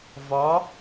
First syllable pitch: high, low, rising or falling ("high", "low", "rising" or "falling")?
rising